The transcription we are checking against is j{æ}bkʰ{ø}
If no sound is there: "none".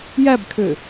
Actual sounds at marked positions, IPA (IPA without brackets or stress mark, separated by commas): æ, ø